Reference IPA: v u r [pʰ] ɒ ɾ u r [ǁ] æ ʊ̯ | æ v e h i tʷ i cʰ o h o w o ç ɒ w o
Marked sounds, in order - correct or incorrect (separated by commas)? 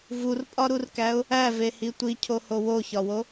incorrect, incorrect